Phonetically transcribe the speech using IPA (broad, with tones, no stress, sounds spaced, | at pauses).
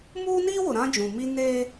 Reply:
m uː˦ n iː˦ w ʊ˨ ɾ ã˦ d͡ʒ ũ˨ m i˦ n eː˦